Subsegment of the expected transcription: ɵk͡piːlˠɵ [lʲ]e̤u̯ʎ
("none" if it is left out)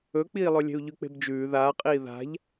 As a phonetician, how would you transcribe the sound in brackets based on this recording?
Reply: lʲ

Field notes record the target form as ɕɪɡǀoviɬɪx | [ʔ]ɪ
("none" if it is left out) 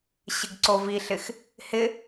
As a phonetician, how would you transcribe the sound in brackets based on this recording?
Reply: h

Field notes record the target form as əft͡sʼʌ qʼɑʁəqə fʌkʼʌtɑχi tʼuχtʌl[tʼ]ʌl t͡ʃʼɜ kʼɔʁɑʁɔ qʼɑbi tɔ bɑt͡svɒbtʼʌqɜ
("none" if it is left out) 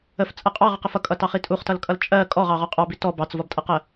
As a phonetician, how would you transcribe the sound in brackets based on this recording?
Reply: kʼ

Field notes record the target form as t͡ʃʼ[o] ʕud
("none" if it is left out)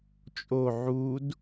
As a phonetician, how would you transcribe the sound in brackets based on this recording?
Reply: o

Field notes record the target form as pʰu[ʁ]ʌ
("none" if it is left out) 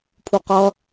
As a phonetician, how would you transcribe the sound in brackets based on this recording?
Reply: q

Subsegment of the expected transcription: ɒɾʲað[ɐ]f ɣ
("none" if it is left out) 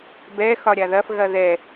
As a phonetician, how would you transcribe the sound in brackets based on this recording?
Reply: ɐ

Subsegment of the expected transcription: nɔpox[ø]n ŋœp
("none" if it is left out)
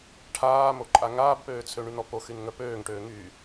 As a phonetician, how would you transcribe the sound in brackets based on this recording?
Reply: y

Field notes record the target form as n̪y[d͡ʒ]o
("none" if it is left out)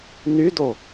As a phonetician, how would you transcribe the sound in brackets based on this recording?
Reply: d̪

